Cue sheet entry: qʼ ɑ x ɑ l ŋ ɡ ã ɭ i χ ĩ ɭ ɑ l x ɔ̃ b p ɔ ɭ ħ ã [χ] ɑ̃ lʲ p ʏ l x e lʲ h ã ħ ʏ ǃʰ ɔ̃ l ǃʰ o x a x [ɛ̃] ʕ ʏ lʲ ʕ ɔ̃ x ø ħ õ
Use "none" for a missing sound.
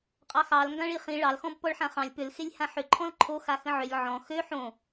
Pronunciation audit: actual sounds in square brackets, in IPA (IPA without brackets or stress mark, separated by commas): χ, ə̃